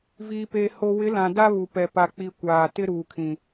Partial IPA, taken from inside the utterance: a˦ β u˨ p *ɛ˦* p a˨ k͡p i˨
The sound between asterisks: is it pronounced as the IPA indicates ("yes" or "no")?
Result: no